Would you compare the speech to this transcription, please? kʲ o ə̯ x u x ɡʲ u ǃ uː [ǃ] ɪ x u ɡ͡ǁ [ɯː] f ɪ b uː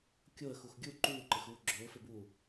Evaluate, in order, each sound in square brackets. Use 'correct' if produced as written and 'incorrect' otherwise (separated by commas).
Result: correct, incorrect